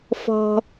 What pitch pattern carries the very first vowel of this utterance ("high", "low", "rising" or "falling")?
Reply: high